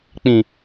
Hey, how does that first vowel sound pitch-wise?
low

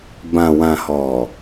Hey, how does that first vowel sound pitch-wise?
low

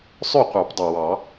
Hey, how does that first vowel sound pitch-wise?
falling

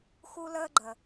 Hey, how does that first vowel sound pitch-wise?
high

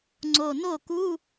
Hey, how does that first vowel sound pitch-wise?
low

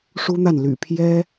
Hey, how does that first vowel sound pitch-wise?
high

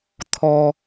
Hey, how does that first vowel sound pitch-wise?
low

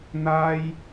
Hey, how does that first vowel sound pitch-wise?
high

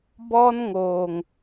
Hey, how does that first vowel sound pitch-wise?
high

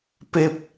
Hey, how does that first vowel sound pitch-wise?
low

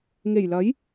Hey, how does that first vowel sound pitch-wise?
low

